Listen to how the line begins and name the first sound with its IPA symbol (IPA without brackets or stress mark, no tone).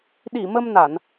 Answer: ɗ